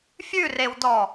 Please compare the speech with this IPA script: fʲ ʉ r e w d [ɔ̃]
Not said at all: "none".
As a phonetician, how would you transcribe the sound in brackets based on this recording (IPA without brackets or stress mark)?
ɔ